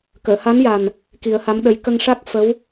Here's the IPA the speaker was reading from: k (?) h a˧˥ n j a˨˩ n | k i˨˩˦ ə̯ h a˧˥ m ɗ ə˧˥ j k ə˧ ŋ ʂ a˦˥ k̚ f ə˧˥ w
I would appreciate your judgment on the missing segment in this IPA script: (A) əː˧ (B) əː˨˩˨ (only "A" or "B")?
B